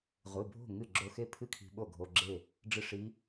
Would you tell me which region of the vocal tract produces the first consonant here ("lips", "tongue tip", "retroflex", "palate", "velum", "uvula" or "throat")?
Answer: uvula